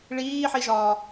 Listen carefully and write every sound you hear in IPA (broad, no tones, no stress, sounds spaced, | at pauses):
ɭ iː ħ i ʒ ɒː